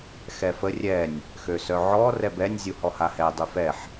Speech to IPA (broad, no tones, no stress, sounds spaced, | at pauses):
x ɛ f ə rʲ ɛ nʲ | x ø s œ ʕ ɔ r ɛ b ɛ nʲ zʲ u h ɔ h a h ɛ dˤ y f ɛ ħ